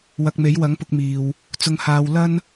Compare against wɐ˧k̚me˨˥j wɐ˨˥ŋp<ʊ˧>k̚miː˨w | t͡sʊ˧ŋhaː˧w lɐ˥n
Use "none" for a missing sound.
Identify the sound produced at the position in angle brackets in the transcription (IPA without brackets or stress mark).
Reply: ʊ˧